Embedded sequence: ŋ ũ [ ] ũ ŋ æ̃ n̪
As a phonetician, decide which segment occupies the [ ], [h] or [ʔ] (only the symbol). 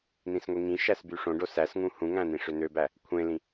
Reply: h